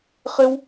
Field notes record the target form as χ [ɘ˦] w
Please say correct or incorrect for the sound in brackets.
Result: correct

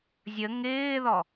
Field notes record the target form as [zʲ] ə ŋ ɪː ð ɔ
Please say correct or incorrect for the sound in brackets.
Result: correct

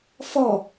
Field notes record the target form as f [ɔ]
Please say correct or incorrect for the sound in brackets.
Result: correct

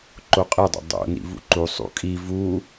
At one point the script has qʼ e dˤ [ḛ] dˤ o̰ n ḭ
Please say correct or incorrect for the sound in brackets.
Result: correct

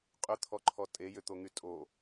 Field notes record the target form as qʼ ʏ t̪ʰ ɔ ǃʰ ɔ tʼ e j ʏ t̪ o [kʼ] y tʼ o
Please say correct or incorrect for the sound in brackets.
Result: incorrect: ŋ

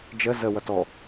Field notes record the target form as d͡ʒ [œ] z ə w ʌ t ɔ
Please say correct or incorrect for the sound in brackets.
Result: incorrect: ə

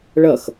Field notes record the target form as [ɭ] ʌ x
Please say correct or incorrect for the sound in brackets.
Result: correct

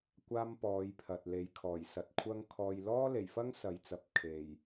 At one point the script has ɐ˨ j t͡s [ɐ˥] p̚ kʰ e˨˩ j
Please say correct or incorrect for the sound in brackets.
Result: incorrect: ɐ˨˥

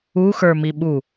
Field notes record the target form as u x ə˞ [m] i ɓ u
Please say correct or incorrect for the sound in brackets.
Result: correct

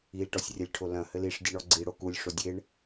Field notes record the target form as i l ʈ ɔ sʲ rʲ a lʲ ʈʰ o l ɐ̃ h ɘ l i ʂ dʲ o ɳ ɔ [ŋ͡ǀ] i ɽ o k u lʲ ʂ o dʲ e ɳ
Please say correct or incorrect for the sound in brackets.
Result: incorrect: ɡ͡ǀ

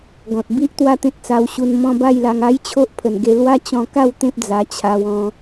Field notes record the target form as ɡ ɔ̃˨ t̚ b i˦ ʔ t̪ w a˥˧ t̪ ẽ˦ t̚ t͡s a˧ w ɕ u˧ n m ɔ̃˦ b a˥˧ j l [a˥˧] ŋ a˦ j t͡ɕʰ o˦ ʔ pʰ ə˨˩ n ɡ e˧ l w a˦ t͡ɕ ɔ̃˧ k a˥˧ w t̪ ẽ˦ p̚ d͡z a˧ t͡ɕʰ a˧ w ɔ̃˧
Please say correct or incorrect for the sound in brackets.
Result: incorrect: a˧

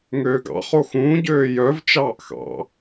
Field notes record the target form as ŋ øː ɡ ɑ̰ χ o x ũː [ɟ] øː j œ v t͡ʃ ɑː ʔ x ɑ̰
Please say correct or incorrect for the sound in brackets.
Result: correct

